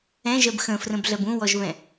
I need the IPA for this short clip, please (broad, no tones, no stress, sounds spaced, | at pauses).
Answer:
ɛ̃ ʒ ɜ b x ə̃ f r ə̃ b ɮ ɜ b ũ w ɔ ʒ β ɛ̃